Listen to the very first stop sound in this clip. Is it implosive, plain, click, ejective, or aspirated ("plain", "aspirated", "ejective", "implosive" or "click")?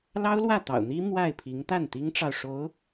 plain